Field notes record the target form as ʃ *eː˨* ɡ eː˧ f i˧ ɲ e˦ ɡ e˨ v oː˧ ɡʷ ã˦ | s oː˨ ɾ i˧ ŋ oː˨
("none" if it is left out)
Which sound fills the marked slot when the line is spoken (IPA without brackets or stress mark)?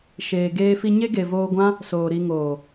eː˨